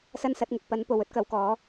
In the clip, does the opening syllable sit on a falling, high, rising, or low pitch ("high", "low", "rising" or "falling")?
high